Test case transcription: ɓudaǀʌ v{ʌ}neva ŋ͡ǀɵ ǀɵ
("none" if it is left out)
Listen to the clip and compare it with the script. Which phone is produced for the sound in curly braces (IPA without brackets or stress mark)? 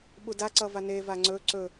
a